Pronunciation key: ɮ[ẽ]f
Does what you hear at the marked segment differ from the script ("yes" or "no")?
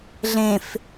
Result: no